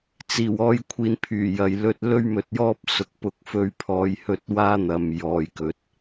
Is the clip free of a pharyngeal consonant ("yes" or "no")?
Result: yes